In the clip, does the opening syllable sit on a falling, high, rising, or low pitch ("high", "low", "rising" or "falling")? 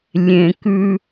low